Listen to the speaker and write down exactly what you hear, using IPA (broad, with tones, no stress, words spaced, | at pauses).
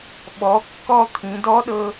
ɓɔ˩˧kːɔ˧ t̪ʰĩ˩˧dɔ˧˥ɗɤ˧